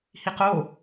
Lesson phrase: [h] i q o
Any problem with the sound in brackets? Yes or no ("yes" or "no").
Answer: no